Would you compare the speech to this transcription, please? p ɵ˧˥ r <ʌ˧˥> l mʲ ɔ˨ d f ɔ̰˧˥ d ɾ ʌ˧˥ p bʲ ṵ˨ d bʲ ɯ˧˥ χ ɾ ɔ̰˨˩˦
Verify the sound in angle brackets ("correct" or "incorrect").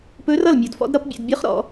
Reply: incorrect